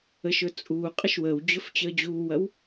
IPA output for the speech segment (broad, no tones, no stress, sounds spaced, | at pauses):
ə ʃ ɵ t͡sʼ uː qʼ ə ʃ w əː w d͡ʑ ɵ f t͡ɕ əː d͡ʑ uː w ɐ w